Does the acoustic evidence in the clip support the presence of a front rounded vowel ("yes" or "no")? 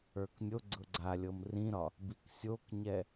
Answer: no